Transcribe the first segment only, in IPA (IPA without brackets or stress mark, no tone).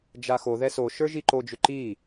d͡ʒ